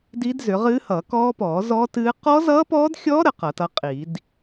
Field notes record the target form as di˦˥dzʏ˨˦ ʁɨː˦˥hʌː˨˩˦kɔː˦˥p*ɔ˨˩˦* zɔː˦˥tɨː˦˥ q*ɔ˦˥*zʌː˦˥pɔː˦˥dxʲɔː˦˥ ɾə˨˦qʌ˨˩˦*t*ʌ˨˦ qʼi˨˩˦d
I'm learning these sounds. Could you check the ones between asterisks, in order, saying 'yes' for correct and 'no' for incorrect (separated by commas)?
no, yes, yes